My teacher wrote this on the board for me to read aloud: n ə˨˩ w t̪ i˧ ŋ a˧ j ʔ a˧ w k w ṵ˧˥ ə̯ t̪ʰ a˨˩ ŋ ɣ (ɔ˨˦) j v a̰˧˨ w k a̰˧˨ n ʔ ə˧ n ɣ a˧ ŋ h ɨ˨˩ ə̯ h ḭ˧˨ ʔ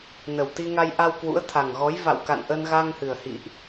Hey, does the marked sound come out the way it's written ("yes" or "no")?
yes